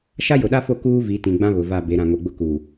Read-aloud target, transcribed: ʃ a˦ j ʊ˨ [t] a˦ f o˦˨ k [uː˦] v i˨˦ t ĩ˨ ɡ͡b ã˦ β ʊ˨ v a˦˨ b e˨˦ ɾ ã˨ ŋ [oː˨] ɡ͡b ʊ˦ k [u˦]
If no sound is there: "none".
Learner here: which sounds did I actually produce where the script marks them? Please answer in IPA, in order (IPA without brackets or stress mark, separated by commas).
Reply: ɗ, uː˦, o˨, u˨